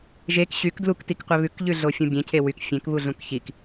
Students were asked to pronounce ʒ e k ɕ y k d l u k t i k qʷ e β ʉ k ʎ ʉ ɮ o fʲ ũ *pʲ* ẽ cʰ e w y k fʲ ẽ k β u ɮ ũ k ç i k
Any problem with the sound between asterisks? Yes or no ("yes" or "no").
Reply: yes